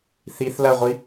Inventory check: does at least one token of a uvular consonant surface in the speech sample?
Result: yes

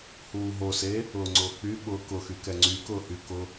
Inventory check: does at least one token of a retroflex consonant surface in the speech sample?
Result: no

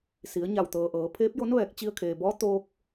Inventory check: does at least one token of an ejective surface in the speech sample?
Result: no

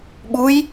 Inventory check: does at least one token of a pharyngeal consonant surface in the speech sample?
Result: no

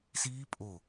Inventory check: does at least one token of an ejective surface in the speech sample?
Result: yes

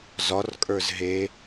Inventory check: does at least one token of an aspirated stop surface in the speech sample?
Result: no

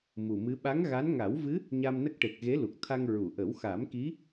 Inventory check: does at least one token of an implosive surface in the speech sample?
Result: yes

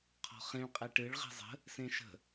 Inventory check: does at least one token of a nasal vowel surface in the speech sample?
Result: yes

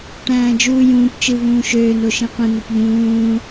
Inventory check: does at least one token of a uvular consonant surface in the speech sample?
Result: yes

